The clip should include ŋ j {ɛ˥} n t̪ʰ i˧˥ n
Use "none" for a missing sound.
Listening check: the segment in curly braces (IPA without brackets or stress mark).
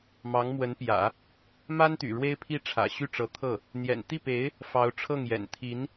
ɛ̰˨˩